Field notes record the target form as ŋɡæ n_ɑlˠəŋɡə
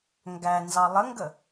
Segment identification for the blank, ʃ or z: z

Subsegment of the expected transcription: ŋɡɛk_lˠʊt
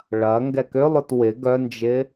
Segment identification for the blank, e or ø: ø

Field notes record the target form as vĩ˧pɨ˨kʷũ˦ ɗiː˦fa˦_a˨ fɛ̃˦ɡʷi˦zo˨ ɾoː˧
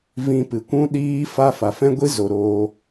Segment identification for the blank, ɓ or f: f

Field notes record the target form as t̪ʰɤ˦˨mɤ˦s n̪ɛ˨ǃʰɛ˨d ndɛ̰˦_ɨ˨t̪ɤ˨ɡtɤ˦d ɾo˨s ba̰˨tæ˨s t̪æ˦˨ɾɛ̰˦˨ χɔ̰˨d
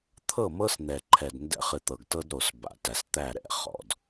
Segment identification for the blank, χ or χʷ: χ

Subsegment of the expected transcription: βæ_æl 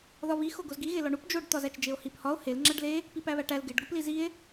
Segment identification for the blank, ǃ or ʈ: ʈ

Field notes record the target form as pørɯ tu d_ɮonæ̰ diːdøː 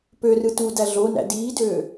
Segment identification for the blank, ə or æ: æ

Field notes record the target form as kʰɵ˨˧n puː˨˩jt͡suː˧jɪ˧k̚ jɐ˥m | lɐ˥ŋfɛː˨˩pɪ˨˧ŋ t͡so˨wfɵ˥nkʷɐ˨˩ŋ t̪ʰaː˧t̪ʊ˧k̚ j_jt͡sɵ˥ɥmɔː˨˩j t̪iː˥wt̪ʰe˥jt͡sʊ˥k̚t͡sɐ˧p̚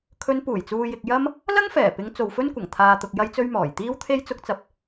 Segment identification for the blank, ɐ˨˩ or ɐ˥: ɐ˥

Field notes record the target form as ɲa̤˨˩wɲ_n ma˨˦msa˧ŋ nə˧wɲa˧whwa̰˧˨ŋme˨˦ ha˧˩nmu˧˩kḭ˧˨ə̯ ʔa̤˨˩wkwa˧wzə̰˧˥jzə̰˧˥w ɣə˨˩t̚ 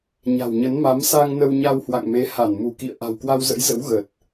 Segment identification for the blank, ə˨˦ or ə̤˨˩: ə˨˦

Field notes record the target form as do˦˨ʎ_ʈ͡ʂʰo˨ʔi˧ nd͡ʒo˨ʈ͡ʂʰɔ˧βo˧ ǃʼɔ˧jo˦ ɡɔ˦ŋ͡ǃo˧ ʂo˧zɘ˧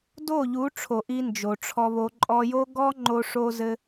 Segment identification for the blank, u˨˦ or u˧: u˨˦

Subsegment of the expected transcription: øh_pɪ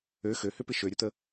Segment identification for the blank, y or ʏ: ʏ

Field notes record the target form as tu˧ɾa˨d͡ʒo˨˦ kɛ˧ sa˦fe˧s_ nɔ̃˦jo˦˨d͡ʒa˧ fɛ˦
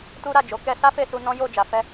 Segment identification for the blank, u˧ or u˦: u˧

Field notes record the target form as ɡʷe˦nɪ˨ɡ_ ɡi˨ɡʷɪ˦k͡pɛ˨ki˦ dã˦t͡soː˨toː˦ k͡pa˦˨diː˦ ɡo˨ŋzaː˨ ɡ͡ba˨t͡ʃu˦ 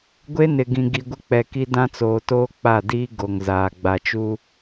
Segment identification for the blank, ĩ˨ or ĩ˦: ĩ˨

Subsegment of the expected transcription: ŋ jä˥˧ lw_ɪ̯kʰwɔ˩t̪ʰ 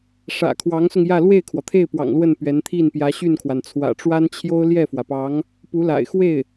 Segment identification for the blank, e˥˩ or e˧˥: e˥˩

